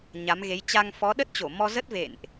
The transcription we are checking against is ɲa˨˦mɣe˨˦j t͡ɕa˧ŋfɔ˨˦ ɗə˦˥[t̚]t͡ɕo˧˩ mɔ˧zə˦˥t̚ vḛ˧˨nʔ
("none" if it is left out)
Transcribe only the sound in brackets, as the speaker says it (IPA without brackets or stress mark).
t̚